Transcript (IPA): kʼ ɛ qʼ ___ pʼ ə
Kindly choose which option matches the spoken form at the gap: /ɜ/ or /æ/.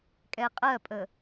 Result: ɜ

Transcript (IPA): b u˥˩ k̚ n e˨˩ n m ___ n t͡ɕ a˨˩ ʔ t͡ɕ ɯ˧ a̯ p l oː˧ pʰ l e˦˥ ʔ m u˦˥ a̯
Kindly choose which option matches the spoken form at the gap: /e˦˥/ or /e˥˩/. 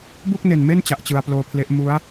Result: e˥˩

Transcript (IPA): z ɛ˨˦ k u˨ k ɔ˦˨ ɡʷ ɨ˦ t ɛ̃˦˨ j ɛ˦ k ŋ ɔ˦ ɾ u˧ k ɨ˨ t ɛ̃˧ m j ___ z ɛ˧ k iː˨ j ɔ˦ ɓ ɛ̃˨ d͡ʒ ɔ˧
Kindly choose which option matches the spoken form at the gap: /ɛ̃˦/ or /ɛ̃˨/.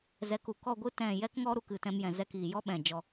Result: ɛ̃˨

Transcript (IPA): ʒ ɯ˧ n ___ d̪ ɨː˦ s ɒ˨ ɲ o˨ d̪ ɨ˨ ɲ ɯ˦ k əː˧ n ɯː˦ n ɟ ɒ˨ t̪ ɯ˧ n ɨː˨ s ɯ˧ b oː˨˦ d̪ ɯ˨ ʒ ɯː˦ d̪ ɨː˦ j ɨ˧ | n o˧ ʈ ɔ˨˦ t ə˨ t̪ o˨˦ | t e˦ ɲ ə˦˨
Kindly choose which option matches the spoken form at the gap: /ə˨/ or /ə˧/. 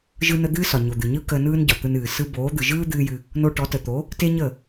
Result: ə˧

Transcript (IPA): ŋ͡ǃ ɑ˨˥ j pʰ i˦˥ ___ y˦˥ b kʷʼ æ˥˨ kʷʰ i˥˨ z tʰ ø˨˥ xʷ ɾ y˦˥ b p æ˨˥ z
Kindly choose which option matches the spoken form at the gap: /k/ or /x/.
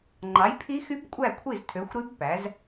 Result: x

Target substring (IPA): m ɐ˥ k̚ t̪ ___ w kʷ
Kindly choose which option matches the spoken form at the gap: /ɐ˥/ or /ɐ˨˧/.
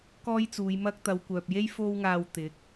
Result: ɐ˨˧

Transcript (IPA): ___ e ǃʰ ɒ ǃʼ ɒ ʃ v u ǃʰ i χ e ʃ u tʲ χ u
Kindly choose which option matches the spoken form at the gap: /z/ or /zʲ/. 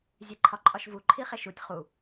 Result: zʲ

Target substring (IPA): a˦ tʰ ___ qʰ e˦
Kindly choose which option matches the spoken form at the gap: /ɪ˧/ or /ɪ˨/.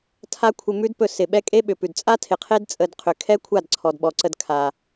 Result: ɪ˨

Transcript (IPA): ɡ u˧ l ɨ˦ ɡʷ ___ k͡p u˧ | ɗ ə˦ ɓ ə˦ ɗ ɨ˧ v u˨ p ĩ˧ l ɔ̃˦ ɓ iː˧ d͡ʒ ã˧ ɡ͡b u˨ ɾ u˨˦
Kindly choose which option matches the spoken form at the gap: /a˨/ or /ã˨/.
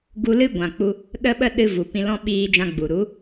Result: ã˨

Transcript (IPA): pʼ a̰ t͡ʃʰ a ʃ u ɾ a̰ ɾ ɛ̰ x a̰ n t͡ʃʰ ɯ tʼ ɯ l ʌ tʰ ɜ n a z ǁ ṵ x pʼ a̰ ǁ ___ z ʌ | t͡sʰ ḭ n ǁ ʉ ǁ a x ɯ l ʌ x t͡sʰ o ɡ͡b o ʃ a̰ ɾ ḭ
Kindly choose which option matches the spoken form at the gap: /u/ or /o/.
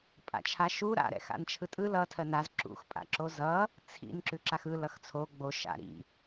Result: o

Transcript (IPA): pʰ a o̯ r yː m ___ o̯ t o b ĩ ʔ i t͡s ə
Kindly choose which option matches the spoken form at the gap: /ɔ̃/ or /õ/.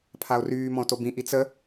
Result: ɔ̃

